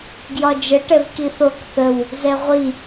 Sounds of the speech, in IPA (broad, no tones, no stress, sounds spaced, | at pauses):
ɡ j ɒ d͡ʒ ə ʈ ɛ v k i θ o k θ ə w | z ɛ ʁʷ i